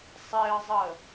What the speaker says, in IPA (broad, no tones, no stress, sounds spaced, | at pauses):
sˤ e ə̯ zˤ ə